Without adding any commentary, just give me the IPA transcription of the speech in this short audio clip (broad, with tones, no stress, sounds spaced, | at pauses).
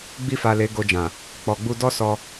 ɡ͡b i˧ f a˨ l e˨˦ ɡ o˧ d͡ʒ ã˨ | k͡p ɔ˨ ɡ͡b u˧ d ɔ˦ s ɔ˧